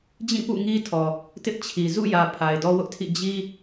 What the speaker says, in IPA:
d͡ʑĩ˦˨pṵ˦˨ŋi˦tʰɔ˨ | tɪ˦ʔt͡ɕʰi˨ zṵ˦˨jä˨ pʰa˨ɪ̯dɔ˦ wʊ˦ʔtʰḭ˦˨ d͡ʑi˦

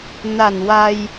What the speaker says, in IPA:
na˨˩n wa˧j

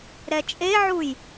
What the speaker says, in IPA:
ɾɛt͡ʃʼeʕuj

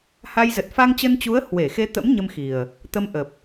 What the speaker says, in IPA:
ha˧j zə˨˩t̚fa˧ŋt͡ɕə˧nt͡ɕu˨˦ə̯ hwe˧˩xe˧t̪ə̰˧˥m ɲə˧mxi˨˩ə̯ | t̪ə˧mʔə˨˩p̚

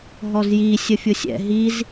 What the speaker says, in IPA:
ɦɔzji sʲəfʲʊsʲɛ̰ ɦiz

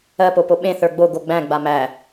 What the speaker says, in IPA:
ɜ popoɓẽθə˞ ɡ͡bo ɡoɡ͡bæ̃ɡ͡ba mæ

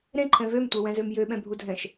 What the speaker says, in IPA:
ɾẽǃʰɛ̃ vømtʷewɛ̃zøm jøɓɛ̃bʱudʱɛ̃ʃ

